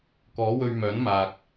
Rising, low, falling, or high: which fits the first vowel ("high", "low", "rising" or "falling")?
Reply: rising